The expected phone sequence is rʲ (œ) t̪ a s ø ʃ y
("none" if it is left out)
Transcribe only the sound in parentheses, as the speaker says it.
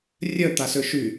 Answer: œ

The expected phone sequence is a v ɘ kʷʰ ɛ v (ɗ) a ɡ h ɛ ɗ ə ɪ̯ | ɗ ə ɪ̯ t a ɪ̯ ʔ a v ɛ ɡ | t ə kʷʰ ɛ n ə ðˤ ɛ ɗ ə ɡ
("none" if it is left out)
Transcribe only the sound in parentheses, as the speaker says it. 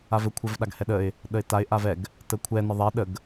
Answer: ɗ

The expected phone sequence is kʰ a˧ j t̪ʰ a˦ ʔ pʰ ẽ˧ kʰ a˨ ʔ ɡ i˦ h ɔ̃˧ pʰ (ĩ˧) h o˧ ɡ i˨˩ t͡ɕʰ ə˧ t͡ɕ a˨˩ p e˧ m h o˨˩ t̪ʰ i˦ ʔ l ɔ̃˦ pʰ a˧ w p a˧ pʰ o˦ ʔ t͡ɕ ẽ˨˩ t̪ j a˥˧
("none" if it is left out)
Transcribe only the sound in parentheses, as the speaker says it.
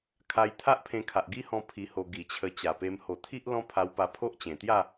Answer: i˧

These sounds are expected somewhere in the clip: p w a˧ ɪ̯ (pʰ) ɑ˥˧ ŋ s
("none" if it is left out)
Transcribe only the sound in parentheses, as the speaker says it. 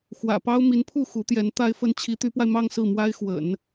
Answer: m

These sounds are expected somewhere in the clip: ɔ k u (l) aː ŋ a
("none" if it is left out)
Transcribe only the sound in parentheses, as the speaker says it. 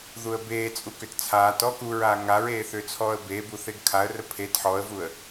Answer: ɹ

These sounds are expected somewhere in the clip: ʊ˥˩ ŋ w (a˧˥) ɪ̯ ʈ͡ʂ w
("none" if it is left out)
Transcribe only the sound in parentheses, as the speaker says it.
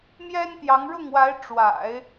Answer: a˧˥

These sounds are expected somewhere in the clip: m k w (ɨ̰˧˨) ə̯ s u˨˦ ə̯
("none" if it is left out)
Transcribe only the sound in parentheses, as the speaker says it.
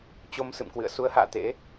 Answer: ɨ̰˧˨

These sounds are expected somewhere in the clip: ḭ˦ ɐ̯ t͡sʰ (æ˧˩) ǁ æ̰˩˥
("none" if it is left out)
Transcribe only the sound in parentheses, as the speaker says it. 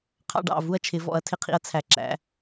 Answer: æ˧˩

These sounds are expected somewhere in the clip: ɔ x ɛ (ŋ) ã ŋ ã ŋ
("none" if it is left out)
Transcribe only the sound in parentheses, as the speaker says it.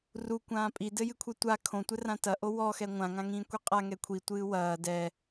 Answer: ŋʷ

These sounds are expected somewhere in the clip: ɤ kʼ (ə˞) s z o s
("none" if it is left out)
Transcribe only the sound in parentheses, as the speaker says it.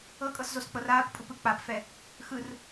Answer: ɤ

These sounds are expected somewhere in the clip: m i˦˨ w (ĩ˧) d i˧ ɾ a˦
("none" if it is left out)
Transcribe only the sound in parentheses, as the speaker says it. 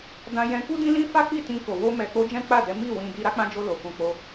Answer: ĩ˧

